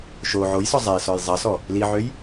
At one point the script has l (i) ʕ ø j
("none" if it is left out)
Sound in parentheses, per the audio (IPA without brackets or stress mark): i